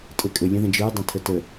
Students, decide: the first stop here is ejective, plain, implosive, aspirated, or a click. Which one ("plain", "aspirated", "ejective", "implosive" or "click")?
ejective